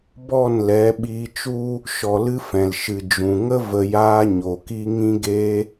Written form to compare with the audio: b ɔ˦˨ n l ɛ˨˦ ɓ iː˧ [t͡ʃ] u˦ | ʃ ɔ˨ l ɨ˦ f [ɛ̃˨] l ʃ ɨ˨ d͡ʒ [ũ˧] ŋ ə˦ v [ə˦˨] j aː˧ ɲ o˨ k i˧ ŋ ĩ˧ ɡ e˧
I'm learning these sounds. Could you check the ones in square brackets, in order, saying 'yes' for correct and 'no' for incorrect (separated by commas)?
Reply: yes, yes, no, no